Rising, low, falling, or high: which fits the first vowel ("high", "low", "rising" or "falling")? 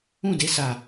falling